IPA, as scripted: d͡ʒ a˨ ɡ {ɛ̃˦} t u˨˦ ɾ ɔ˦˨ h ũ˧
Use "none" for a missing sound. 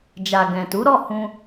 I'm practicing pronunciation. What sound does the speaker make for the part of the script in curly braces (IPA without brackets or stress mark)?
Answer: ɛ̃˨